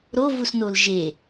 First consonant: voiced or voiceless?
voiced